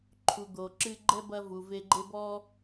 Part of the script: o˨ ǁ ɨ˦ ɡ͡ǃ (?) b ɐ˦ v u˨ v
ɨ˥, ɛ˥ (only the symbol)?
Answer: ɛ˥